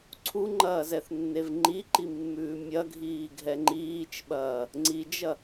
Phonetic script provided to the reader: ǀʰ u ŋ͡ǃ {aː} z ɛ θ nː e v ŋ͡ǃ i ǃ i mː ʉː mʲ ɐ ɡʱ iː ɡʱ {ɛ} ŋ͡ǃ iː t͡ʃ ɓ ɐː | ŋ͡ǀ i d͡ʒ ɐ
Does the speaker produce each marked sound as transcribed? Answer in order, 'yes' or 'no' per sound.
no, yes

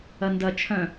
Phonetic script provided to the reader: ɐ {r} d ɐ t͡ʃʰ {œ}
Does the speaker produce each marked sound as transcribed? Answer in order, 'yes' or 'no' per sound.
no, no

